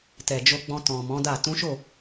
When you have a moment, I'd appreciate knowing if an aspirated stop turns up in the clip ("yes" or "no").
no